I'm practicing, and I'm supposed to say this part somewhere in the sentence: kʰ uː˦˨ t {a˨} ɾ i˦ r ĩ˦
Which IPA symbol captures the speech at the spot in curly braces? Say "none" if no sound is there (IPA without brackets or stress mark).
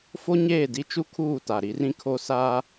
a˨